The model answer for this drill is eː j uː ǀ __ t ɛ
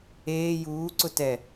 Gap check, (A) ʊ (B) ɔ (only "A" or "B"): A